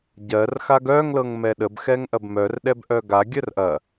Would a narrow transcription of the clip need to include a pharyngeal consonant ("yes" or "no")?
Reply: no